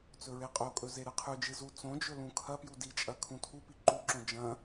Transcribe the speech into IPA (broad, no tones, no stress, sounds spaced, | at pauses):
t͡s ɵ ɹ e qʼ o kʼ ɵ z e ɾ ɨ qʰ ʉ d͡ʒ ɨ z u t͡s õ d͡ʒ ɵ l ũ kʰ ɐ p j u d i t͡ʃʼ ɐ kʰ ũ tʰ u p i ǃ u ǁ õ d͡ʒ ɐ̃